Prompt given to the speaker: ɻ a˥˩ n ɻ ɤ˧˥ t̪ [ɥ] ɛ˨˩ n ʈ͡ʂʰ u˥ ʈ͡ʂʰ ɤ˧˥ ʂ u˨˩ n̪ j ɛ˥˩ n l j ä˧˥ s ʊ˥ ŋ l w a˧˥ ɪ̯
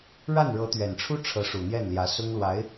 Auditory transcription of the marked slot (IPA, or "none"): ɥ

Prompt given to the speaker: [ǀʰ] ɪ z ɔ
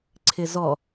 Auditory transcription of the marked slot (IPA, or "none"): ǀʰ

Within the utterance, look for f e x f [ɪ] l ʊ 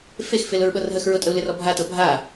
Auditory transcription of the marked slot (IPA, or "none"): ɪ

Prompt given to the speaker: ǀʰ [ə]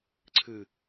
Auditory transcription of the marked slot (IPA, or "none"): ɨ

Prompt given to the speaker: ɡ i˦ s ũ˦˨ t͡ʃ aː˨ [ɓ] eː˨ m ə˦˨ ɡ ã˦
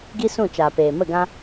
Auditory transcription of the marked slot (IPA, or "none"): p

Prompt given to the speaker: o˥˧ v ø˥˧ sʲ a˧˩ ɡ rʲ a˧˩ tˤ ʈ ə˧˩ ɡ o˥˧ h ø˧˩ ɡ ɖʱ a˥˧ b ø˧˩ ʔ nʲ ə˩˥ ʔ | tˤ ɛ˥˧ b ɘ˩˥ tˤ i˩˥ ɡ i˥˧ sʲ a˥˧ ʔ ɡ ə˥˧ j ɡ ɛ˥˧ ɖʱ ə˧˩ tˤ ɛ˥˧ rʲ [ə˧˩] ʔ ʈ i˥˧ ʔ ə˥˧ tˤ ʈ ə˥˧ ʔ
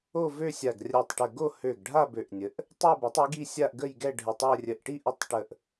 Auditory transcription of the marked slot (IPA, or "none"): ə˧˩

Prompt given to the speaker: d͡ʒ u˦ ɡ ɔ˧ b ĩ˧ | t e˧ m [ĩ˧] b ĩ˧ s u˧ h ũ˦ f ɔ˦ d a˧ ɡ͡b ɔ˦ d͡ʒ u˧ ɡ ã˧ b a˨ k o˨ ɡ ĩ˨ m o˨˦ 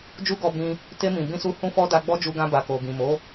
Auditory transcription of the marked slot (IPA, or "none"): ĩ˨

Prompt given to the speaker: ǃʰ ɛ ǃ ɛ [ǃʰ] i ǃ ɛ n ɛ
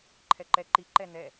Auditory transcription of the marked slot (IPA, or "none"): ǃ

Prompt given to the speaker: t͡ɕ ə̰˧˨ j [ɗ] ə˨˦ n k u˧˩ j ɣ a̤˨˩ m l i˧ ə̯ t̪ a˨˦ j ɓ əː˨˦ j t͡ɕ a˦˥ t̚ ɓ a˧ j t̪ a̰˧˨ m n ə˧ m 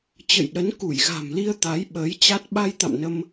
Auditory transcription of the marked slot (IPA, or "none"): ɗ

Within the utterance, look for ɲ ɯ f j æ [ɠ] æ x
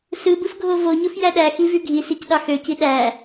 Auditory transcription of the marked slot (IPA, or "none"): ɗ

